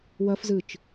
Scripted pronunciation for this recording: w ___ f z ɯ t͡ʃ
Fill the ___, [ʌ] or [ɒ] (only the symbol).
ʌ